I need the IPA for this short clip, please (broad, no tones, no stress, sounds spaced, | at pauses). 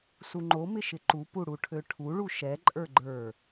s u ŋ͡ǃ o m ɪ ʃ ɪ ǃ u p u ɽ u ʈʰ ø ʈʰ u ɭ u ʃ ɛ ǃʼ ə˞ ɡ͡ǃ ə˞